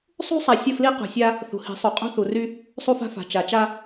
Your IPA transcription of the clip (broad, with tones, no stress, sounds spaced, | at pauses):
sˤ ṳ˦ sˤ a˨ sʲ ə˦˨ f l i˦ q ṳ˨ sʲ a˦ | θ ṳ˨ h i̤˨˦ sˤ u˨ qʼ ṳ˦ θ u˨ r y˦ | sˤ u˦ f a̤˦ f a̤˨ t͡ʃ a˨ t͡ʃ a˦